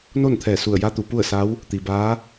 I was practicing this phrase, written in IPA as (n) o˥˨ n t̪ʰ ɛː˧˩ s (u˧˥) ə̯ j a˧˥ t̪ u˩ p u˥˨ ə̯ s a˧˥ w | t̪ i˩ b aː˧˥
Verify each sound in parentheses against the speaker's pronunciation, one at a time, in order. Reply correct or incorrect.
correct, incorrect: u˧˩

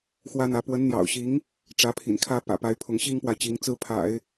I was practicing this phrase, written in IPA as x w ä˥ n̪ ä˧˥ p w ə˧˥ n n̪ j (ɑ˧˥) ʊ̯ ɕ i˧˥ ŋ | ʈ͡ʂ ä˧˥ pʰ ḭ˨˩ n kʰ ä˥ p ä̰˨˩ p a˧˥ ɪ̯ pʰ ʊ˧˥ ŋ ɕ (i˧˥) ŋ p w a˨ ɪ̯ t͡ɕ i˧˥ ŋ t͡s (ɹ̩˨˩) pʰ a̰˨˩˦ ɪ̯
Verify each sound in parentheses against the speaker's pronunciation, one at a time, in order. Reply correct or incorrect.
incorrect: ɑ̰˨˩, incorrect: i˥, incorrect: ɹ̩˥

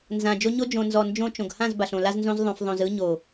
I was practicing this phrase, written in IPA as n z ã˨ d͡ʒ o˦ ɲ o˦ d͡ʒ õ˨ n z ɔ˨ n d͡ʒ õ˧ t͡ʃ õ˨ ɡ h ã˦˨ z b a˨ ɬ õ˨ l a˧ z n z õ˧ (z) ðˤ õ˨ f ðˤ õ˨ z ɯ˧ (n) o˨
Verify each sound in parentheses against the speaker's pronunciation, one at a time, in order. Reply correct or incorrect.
correct, incorrect: ɲ

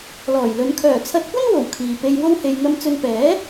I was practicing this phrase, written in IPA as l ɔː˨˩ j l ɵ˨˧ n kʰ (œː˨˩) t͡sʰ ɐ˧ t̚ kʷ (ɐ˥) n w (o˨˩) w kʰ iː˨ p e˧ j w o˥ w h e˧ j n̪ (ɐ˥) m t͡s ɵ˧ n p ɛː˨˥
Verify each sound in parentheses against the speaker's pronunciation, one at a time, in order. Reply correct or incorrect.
correct, correct, correct, incorrect: ɐ˧

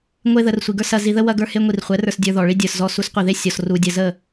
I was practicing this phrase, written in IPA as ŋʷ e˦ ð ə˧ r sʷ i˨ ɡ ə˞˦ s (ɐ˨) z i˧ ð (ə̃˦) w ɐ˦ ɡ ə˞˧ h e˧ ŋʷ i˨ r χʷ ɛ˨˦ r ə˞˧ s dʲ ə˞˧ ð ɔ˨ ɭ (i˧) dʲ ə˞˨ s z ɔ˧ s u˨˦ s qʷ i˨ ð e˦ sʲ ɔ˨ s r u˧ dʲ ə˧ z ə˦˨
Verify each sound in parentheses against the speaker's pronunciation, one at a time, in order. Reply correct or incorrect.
incorrect: ɐ˧, incorrect: ə˦, incorrect: i˦

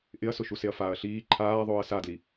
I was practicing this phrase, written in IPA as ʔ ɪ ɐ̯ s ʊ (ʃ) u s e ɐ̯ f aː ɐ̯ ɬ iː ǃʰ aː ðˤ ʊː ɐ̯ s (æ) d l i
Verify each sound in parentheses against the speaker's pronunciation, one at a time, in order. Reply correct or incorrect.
correct, incorrect: a

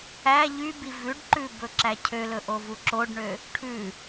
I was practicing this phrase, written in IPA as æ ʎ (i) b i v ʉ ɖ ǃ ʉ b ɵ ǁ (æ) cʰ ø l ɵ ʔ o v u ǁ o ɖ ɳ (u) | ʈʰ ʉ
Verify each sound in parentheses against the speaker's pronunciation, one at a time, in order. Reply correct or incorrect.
incorrect: y, correct, incorrect: ø

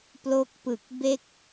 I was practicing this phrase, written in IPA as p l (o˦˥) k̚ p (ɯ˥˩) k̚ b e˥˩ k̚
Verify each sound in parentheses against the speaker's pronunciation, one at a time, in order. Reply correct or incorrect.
correct, incorrect: ɯ˨˩

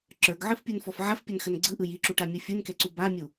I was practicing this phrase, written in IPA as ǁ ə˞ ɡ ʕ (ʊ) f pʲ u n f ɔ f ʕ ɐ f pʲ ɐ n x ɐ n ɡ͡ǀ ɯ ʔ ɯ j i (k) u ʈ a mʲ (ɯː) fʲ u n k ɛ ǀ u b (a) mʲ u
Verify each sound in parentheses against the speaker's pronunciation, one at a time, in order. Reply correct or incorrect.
incorrect: ɯ, incorrect: ǁ, incorrect: ɯ, correct

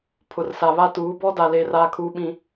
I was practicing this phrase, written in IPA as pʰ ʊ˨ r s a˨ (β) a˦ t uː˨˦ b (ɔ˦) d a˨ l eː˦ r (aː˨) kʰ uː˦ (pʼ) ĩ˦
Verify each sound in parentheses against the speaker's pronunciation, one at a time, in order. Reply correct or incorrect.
correct, correct, incorrect: aː˦, incorrect: ɓ

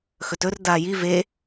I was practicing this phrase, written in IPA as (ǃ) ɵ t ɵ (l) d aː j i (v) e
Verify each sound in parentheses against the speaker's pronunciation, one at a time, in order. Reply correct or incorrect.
incorrect: x, incorrect: r, correct

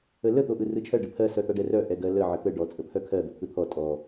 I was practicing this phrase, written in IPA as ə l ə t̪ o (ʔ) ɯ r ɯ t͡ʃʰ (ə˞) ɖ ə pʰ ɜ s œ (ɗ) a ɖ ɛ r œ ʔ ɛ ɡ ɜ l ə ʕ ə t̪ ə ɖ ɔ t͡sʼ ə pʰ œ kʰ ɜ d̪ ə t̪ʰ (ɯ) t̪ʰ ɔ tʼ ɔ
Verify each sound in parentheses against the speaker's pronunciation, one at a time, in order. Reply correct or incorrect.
correct, incorrect: ɜ, incorrect: t̪, correct

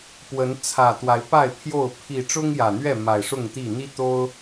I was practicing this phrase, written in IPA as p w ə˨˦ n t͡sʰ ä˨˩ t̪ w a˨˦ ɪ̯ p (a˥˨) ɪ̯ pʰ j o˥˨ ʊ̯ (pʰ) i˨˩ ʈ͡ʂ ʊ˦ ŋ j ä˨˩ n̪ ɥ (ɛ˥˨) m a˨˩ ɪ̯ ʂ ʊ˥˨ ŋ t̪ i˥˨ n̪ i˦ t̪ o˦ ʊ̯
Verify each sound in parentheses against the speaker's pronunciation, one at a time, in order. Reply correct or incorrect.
correct, correct, correct

